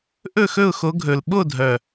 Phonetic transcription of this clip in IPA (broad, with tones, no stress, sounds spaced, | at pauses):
ʔ ɵ˥˨ x ɵ˥˨ ʊ̯ x o˨˦ ɡʱ ɵ˨˩ l ɓ o˥˨ dʱ œ˨˩